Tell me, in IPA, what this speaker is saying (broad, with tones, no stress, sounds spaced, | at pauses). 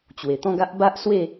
t͡ɕ w e˨˩ t̪ ɔ̃˥˧ ɡ a˦ ʔ b a˦ ʔ s w e˥˧